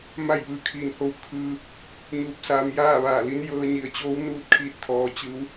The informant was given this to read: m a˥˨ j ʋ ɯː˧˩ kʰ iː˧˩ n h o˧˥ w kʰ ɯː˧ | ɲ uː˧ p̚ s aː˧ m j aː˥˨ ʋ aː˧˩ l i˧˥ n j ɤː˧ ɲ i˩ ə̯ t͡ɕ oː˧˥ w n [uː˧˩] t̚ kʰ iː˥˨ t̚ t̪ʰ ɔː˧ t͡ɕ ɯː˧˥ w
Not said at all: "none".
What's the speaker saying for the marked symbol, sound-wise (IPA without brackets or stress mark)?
uː˥˨